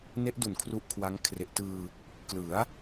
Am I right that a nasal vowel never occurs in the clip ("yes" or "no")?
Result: yes